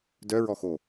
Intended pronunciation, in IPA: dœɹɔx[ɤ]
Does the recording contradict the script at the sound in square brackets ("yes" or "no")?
yes